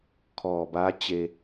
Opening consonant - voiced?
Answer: no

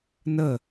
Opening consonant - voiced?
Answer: yes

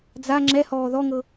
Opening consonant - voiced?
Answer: yes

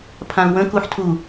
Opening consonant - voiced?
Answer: no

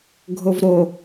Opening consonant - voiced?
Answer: yes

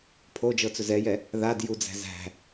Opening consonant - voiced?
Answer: no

